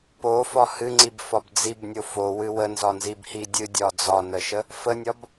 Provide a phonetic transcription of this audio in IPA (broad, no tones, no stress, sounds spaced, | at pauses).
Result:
p o f ɒ h ɨ ŋ͡ǀ i b f ɒ b d͡z i b nʲ o f o w ɨ w ə n z ɒ n z i b h i dʲ ɨ dʲ ɒ d͡z ɒ n ə ʃ ə | f ə nʲ ɒ b